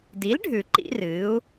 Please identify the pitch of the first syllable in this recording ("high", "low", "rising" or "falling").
rising